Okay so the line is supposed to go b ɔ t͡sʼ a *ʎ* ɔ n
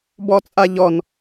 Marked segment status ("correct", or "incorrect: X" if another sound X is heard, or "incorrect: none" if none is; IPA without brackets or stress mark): correct